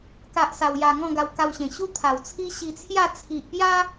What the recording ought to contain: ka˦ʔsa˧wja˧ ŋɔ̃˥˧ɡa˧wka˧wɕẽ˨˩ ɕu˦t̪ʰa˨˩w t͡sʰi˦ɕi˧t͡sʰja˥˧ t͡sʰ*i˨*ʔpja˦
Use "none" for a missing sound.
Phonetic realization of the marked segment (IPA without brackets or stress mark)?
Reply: i˨